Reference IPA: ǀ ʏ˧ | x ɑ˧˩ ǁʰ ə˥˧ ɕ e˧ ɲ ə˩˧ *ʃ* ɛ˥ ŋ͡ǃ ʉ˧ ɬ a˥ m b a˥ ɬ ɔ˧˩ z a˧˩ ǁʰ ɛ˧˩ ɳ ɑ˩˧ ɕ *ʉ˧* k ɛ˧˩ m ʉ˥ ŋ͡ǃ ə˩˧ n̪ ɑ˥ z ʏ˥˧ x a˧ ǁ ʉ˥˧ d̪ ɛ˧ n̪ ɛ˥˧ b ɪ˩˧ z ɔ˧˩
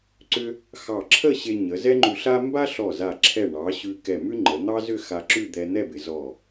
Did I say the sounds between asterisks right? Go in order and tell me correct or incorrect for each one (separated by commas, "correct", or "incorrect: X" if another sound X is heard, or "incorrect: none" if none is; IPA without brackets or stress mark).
incorrect: z, correct